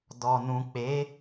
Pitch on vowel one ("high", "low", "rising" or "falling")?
low